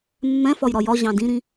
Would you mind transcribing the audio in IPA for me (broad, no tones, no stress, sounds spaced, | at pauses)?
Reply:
mː ɛ̃ f ɒ j ɾ ɒ j ɒ ʑ ɑ̃ d ĩ ɾ ĩ